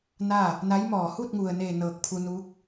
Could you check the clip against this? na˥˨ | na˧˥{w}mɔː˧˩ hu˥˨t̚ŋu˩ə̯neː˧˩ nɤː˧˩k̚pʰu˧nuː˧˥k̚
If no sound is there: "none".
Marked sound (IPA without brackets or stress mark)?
j